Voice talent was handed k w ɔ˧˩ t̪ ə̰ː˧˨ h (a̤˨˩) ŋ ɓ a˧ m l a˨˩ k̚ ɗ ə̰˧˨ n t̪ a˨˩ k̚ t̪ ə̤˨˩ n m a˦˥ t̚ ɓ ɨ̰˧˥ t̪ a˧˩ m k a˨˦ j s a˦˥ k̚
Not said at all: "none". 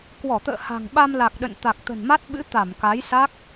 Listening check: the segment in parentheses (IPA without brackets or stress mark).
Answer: a̤˨˩